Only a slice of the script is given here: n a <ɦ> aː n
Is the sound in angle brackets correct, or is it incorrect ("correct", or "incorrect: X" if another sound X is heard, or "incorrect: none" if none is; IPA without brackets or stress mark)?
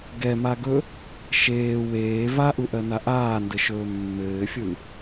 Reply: incorrect: ʔ